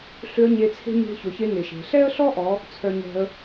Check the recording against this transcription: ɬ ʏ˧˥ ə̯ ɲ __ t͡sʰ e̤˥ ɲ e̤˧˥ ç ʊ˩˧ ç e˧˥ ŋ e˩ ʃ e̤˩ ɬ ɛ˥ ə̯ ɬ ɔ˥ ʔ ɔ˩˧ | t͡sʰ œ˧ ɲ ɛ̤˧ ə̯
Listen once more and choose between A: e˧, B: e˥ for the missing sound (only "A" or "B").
A